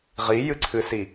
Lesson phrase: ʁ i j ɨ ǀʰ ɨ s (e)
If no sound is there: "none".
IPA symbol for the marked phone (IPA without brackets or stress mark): i